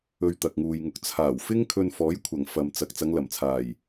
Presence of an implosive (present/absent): absent